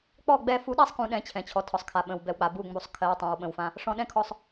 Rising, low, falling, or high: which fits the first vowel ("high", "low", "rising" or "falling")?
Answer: falling